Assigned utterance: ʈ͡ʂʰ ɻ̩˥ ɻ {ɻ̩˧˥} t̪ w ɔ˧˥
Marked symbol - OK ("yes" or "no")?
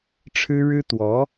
no